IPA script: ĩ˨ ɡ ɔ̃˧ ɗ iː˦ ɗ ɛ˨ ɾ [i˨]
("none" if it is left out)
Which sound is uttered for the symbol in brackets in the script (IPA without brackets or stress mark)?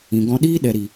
i˨